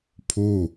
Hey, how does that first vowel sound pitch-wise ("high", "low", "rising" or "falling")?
falling